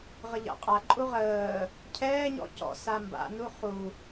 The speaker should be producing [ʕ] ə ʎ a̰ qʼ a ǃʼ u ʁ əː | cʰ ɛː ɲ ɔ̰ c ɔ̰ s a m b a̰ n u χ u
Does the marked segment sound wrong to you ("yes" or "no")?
yes